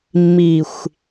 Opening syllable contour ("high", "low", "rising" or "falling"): low